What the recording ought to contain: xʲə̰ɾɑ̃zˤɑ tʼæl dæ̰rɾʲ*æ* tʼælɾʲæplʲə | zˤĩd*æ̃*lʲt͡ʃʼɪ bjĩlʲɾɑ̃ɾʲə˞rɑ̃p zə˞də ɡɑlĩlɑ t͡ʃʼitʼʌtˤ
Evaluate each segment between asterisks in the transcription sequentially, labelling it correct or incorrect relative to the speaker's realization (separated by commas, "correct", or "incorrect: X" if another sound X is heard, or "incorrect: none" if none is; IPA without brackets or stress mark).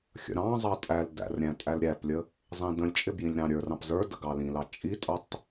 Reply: incorrect: æ̃, incorrect: ə̃